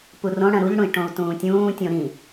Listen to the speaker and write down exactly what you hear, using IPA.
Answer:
p u r õ ɽ ɐ̃ ɾ u ʎ ɽ ũ i̯ ʈ õ u̯ t ũː tʲ ũː tʲ õ ɾ ĩ

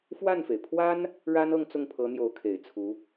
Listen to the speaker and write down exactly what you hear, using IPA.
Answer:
f w a˥˩ n f e˩ ɪ̯ pʰ w a˥ n | ɻ a˥ n ɤ˥˧ ŋ t͡s ʊ˥˩ ŋ pʰ ɤ˧˥ n̪ j o˧˥ ʊ̯ kʰ e˨˩ ɪ̯ t͡sʰ u˧˥

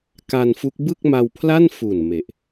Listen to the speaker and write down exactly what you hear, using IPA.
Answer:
k a˧ n f u˦˥ k̚ b ɯ˥˩ k̚ m a˧ w pʰ l a˥˩ n f u˨˩ n m e˨˩ ʔ

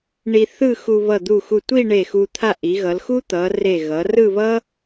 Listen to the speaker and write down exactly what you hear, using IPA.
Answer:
ɳ i˧ θ ɯ˥˧ x u˧ β ʌ˧˩ d̪ u˧˩ x u˧˩ tʷ i˥˧ ɳ e˧˩ x u˧ t̪ʰ a˥˧ ʔ i˩˧ ɣ ʌ˩˧ l x u˥ t̪ ʌ˩˧ r e˧˩ ɣ ʌ˩˧ r ɯ˥˧ β ʌ˥

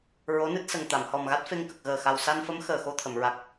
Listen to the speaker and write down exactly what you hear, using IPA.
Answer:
ɹ o˧˥ n ɨ˦˥ t̚ s ə˨˩ ŋ t̪ a˨˩˨ m h ɔ˨˩ m ɣ a˦˥ t̚ f e˧ ŋ k ə˨˩ k̚ ɣ əː˨˩ x a˨˩ w s a˧ n f ə˧˥ m x əː˨˩ x o˧ t̪ʰ ə˨˩˨ m ɹ a˨˩ k̚

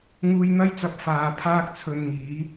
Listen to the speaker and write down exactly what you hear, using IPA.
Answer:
ŋ uː˧ j n̪ ɐ˥ j t͡s ɐ˧ p̚ f aː˨ pʰ aː˥ k̚ t͡sʰ ɵ˧ n ŋ iː˨˥

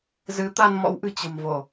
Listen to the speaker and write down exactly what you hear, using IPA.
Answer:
z ɨ˨˦ t̪ a˧ n m ɔ̰˧˥ w ʔ ɨ̤˨˩ t͡ɕ ə̤˨˩ m v o˧˩˨

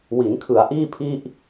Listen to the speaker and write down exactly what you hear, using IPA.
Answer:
w i˩˦ n kʰ ɯ˩˦ a̯ ʔ iː˥˩ pʰ i˥˩ ʔ

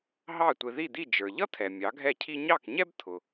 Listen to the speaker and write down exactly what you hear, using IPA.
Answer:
ɦ ɑ˥˩ tʷ ɪ˧ ð i˥˩ d̪ i˥˩ d͡ʒ ə˞˩ ʎ ʌ˥ t̪ʰ ɛ˩ mʲ ɑ˩˥ ɡʱ ɛ˥˩ cʰ i˥ ɲ ɑ˥˩ k ɲ ɛ˥ b t̪ʰ ʊ˩

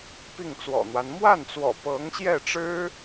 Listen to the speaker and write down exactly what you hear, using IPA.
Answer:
p i˥˩ ŋ t͡s w ɔ̰˨˩ n̪ w a˦ n m w a˥˩ n t͡s w ɔ̰˨˩ p ɤ˧˥ ŋ ɕ j ɛ˥˩ ʈ͡ʂ ɻ̩˥

